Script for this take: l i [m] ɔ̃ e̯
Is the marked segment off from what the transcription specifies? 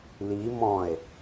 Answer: no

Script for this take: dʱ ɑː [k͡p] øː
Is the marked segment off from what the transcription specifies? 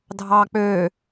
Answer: no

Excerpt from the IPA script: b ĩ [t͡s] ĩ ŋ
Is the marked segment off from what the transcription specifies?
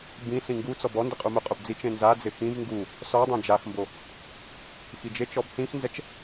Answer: yes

